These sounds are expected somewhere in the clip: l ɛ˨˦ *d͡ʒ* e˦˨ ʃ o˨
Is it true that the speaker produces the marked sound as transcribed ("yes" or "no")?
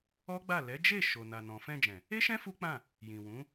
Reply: yes